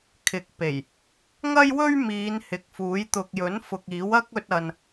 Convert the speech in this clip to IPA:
kʰɪ˨˥k̚pe˨˩j | ŋɐ˥jwɵ˥ɥmiː˨˧n hɪ˨k̚fuː˨˥j t̪ʊ˨k̚jɵ˨˥nfʊ˨k̚ iː˨˥wɐ˥k̚ɵ˧t̚ ɐ˨n

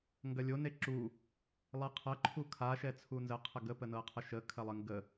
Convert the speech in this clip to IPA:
ŋɡɐlʲo neǁu | lˠɛqʰɐ ǃʰukʰa ʃɛt͡sʰunzə qʰəɡə pənɤqʰəʃə kʰɐlˠəŋɡə

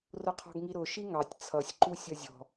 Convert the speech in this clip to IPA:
rʊqʰɔ̤ɡŋiɾʊ ʃiŋɑtʲ t͡sʰʌsʲ ǃusʲʌzʲɔ̤

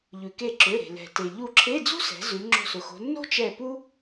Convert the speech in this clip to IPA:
ʎʉ˩ke˧˩ǁø˩˧˩ɾe̤˩ lɛ̤˩te˩ ʎu˧˩ǁʰe˧˥˧ d͡zṳ˥sɛ̤˩˧ zʉ˩˧ ŋ͡ǁo̤˧˩sʊ˩xo̤˩˧ nːo̤˥t͡ʃɛ˧˩ pu˥

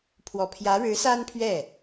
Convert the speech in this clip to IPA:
pʰwɔ˨˩pʰjä˧˥ɻɻ̩˧˥ sa˥npʰɥɛ˥˩

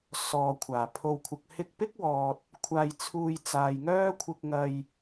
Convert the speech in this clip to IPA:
sɔː˨ kʷʰaː˨˩ pʰo˨wkʷʰɐ˨k̚ hɪ˧k̚pɪ˥k̚wɔː˨t̚ | kʷʰaː˧jt͡sʰuː˧j t͡saː˨jŋœː˥ kʷʰɪ˧k̚ŋɐ˧j

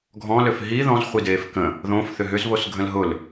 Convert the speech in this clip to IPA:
ɡʱɔ̃ løfɦi ðɔ̃z χʷideːfkə̃ | ðõf θʏɦʏz βosɡʱə̃lɦʊl

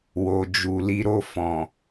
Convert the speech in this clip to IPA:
wo˨d͡ʒu˨ li˧ɾo˧ fɔ̃˨

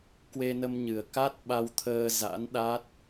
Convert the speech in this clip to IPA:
kwe˧nə˧mɲɨ˨˩ə̯ ka˦˥t̚ ɓa˧wt̪ʰəː˧za̰˧˥n ɗa˦˥t̚

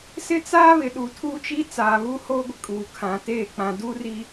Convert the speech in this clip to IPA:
sɪ˦t͡saː˦ βɪ˨ɗu˨tʰuː˦t͡ʃi˦ t͡saː˨βu˦hoː˦ɡʷɪ˨ kʼuː˨kʰã˨teː˦˨ k͡pã˨du˦ri˨

